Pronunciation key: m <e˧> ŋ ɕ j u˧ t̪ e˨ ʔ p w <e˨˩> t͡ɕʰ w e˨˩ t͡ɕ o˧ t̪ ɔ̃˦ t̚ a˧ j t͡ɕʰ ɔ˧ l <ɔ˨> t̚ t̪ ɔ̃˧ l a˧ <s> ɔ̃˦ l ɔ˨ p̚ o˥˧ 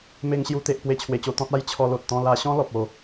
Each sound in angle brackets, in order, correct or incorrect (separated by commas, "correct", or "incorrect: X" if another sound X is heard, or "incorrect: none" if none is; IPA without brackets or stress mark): correct, incorrect: e˧, incorrect: o˨, incorrect: ɕ